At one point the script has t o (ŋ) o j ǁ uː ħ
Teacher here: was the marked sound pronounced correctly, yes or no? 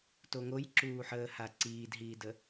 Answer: yes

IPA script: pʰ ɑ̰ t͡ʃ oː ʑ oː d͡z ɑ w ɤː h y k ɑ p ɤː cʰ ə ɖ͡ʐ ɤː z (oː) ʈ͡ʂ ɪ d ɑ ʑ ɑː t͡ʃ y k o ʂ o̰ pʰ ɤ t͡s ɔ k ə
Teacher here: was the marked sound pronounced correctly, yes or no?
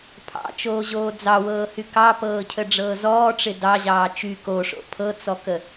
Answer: no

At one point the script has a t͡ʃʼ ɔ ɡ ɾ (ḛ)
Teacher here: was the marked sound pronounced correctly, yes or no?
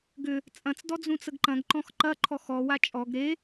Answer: no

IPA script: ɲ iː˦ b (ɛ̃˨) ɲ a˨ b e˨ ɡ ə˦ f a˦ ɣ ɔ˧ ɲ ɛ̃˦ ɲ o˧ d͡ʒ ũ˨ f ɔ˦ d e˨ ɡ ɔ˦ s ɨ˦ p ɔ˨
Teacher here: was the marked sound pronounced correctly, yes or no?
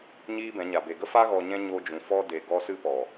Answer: no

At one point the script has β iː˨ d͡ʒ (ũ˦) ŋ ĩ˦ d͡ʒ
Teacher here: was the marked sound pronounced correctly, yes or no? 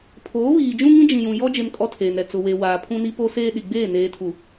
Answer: yes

